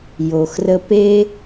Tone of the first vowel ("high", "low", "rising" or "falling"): low